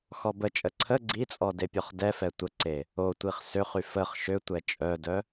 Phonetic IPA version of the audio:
x ɔ b ə t͡ʃʼ ə ǀʰ ə ɡ͡ǀ i t͡sʼ ɔ d e pʲ ɔ χ d ɛ f ɛ tʷ ə ǀ e | o tʷ i χ s ø χ y f ə χ ʃ ø tʷ ɛ t͡ʃʼ œ d œ

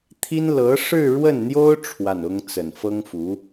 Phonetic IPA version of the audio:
t̪ʰ i˥ n l ɤ˧˥ ʂ ɻ̩˥˧ ɻ w ə˥˩ n n̪ j o˥ ʊ̯ ʈ͡ʂʰ w a˥˩ n ʊ˥ ŋ t͡s ə˨˩ n f ɤ˥ ŋ f u˧˥

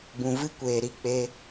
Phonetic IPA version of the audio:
b ũ˨ v ɨ˦ kʷ eː˨ ɾ i˦˨ k͡p e˧

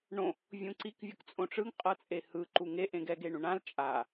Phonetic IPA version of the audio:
ɳ õ | vʲ ũ ǀ i k vʲ u k t͡sʼ õ ʈ͡ʂ ɯ ŋ qʼ ɤ t͡sʼ e h ɯ ǃ u ŋ e ʔ ẽ ɡ ɛ ɡ e ɳ ũ ɳ ã l t͡ʃʼ a

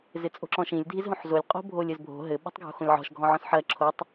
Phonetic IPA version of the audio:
z ɪ t͡sʼ o̤ ǁ ɔ̃ ʃ ĩ lʲ dʱ i z ɦ õ ħ z o lʲ qʼ o̤ bʱ o lʲ ɘ z bʱ o̤ ɦ ɘ ɓ o̤ tˤ ɡʱ o̤ x õ lʲ ʕ ɔ̤ ʃ ɡʱ ɔ̃ ʕ ɔ̃ s ħ ɜ ǁʰ o tˤ

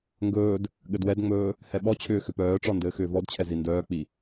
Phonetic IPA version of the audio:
ŋ ɡ ɵː d | ɠ ɘ d w ɛ d ŋ͡m ɵː | h ɛ ɓ ɔ t͡ɕʰ ʏː x ʏ p œː ʈ͡ʂ ɔ n d ɘː x ʏː v ɔ d t͡ɕʰ ɛ z i n d œː k͡p i

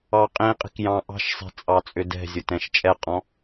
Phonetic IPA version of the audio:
ɑ qʼ ĩ qʼ i̤ k j ɑ̃ ʔ ɑ̤ ʃ sˤ i̤ t͡sʼ ɑ t͡sʼ ʏ d ɛ̤ zʲ ʊ t ɛ̃ ʃ t͡ʃʼ ɛ qʼ ɔ̃

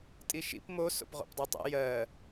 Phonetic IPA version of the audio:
tʼ i ʃ ḭ p m o s o̰ p ʁ o̰ p dˤ ɜ tˤ ḛ j ɜ

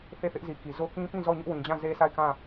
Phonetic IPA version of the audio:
θ e˦˨ θ ɪ˦ ʔ z i˨ k i˨ z o˦ k ĩ˦ p ĩ˦˨ z ɔ˦˨ ɲ ʊ˦ ʔ w ĩ˨ d͡ʑ ã˦˨ z e˦ s a˦˨ ɪ̯ k ã˦˨

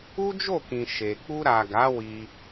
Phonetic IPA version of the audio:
u˦ d͡ʒ o˦˨ k ĩ˨ ʃ e˨ k͡p u˧ ɾ a˨ ɡ a˨˦ w i˧

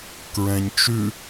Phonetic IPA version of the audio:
k ɹ ɛ̃ ɲ t͡ʃ ʉ

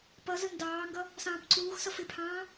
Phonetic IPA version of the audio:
p ʌ z ə n d ɑː ŋ ɡ ʌ | s ɑ̃ː p ǀ uː x s ʌ f ɪ pʰ ɑ̃ː

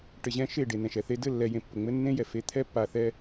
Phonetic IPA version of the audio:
ʈ ɘ˨ ʑ ɛ̃˦ ʃ e˦˨ ɖ e˨ n ɛ̃˨ ʃ ɛ˨ θ e˦ d ɘ˦˨ lː ɛ˨ j ẽ˨ pː ə˨ ŋ͡m ɘ˦ nː ẽ˦ j ɛ˨ f e˦ t̪ʰ ɛ˦ pː a˨ θ ɛ˦

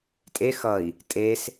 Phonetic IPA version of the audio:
tʼ e x ʌ i̯ | tʼ e s

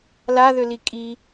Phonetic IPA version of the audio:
l a ð ø l i kʼ i

